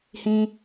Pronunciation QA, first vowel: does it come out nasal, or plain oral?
nasal